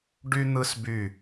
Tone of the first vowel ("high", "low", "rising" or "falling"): high